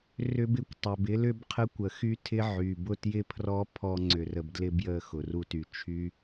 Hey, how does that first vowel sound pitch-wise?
high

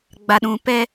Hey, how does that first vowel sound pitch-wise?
low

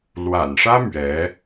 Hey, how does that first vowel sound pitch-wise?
low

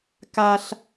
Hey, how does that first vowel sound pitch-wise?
high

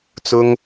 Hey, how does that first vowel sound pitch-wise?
high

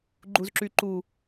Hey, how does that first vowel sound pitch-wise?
low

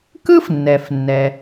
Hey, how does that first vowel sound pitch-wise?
high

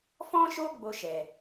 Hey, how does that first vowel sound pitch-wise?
high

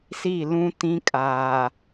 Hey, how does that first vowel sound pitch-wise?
falling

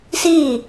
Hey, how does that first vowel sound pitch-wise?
falling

